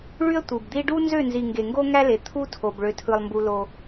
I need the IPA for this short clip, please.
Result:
ɭ y˦ ə̯ tʷ ɯ˨ b d̪ i˦ ɖ u˦ n z ø˦˨ n z i˨ ŋ ɡ e˨ ŋ ɡ o˦ ŋ æ˦ l e˨ t̪ʰ u˦ tʰ o˨ b ɭ ø˦ tʰ ɯ˦ lˠ m b u˦ l o˦

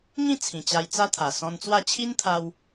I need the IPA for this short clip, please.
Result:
ŋ ĩ˥˧ t͡sʰ ĩ˨˩ t͡ɕ a˧ j t͡s a˦ t̪ʰ a˨˩ s ɔ̃˧ n t͡s w a˥˧ t͡ɕʰ i˦ n t̪ʰ a˧ w

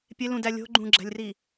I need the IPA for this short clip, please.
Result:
pʲ e l ũ d æ lʲ o̤ ɡ͡ǃ ũ ɡ͡ǁ æ̤ lʲ r i

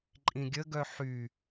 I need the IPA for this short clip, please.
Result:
ǃʼ ĩ ɡʲ ə ɡ œ ħ y

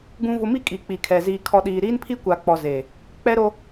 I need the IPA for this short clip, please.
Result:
ɡ ũ˨ v ʊ˨ m i˦ kʼ i˨ k͡p i˨ kʰ ɛ˨ z iː˨ kʰ ɔ˨ ɗ iː˨ ɾ iː˦ n pʰ i˦ kʷ a˨ k͡p ɔ˨ z eː˨ | k͡p ɛ˦ ɾ o˦

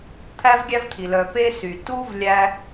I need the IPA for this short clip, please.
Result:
t̪ʰ æ˥ v ɡʲ æ˥ v t̪ʰ i˩ l œ˩ p e˥ s y˩ t u˥ v lʲ æ˥

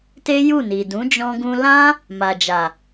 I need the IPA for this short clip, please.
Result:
t e˦ j u˦˨ n i˨ d ũ˨˦ d͡ʒ ɔ̃˧ ɡ ũ˧ l ã˦ | m a˨ d͡ʒ a˨

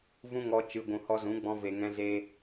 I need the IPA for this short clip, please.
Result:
v ũ˦ ŋ ɔ˧ t͡ʃ ɨ˨ ɡʷ ũ˨ h ɔ˧ z ũ˨˦ ɡ͡b ɔ̃˧ v e˨ ŋ ɛ̃˦ z e˦

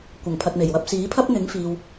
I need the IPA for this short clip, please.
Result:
kʷ ɐ˨˩ ŋ pʰ ɐ˨ t̚ m e˨˩ j w ɐ˨˥ p̚ s iː˨˥ pʰ ɐ˥ p̚ n̪ ɪ˨˥ ŋ f iː˨ w

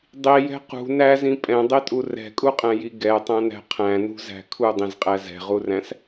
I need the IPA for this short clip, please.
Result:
dˤ i j ɛ̤ q ṳ n æ z ĩ pʼ ɛ̃ dˤ i tʼ u r ɛ̤ kʼ u qʼ æ̃ j i ɡ ɛ tˤ æ̃ n æ̤ qʰ æ̃ n ṳ z æ̤ kʰ u dˤ ĩ z qʼ æ z ɛ̤ ʁ u r æ̃ s

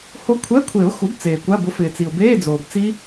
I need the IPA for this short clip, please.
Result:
h o˦˥ kʷʰ ɛ˧˥˧ kʷʰ e˨˩˦ ʊ̯ x u˩˥ b t͡s eː˩ kʷ a˧˥˧ b ʊ˩˥ f ɪː˩ t͡s i˩ ʊ̯ b eː˧˥˧ d͡z oː˩ b t͡s i˦˥

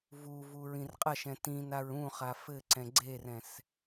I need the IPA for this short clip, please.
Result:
v u v u ɹ ĩ r qʼ ɐ ʃ ɛ̃ t ĩ n a ɹ ũ χ a f ɘ ǀ ɛ̃ ɡ͡ǀ e r ɛ̃ s

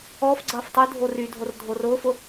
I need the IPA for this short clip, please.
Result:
ɔː f ɡ͡ǀ ɐː f tˤ y dʱ o r y dʱ o r dʱ o r ʊː f ʊ

